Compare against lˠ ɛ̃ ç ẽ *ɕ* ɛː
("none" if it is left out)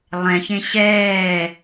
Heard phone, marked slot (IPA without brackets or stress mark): ɕ